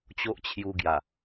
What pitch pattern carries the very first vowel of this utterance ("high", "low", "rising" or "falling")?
high